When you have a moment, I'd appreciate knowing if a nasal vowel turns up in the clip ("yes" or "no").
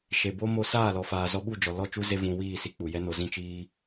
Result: yes